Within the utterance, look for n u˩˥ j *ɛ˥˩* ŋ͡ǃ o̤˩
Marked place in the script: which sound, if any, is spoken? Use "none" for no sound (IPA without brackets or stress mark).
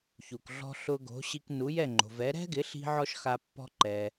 ɛ˥˩